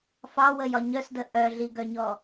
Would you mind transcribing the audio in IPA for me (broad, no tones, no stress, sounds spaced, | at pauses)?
f ɑ w ə j ɒ ɲ œ s d ə ʔ œ ɮ i ɡ œ ɲ ɔ